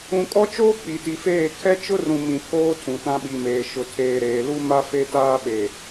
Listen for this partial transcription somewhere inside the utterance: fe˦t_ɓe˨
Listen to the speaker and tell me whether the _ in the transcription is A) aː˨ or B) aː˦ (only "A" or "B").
B